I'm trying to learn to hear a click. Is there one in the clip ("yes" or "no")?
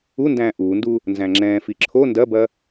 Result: yes